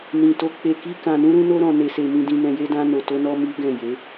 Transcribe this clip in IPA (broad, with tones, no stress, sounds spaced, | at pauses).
n ĩ˨ t o˨˦ k͡p e˧ k i˦ k ã˧ n ũ˦ ɾ ũ˦ n o˦ ɾ ɔ̃˧ n e˧ s e˧ m ĩ˧ d ĩ˧ n ɛ̃˧ j e˦ d ã˦ n o˧ t o˦ n ɔ˦ m i˦ ɡ ɛ̃˦˨ j e˨˦